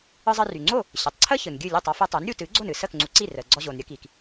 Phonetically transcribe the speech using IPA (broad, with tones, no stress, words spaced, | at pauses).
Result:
ɯ˧zˤə˧ry˩ŋ͡ǀo˥˩ | ɕɯ˩tˤǀʰəː˥ çɯ˩nɡʲɨ˥˩lʲɯ˥˩tˤ ɔ˧fɯ˧tˤu˩˥n ɾʲu˧ tɨː˩˥ɡ͡ǀo˥˩nɨ˥˩ səː˥˩kŋ͡ǀu˩˥ǀi˥˩ rəː˩ɡ͡ǀɔ˧ʑo˩n ɾʲəː˥kiː˩k